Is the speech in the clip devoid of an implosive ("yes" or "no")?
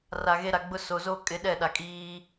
no